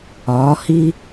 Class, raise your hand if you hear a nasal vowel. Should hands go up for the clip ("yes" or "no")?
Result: no